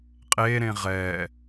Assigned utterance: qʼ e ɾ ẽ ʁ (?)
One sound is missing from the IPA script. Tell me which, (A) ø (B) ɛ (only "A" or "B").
B